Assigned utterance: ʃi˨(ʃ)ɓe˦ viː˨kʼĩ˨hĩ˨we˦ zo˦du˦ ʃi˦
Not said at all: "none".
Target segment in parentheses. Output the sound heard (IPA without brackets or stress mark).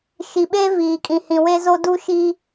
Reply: none